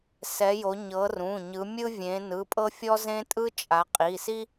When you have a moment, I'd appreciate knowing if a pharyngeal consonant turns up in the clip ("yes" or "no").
no